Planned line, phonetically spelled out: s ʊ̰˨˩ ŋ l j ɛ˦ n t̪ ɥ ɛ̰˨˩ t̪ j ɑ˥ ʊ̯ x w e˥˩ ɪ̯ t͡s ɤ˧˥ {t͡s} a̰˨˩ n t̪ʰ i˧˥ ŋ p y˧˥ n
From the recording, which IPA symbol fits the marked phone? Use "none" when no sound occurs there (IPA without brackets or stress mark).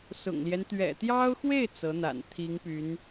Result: n̪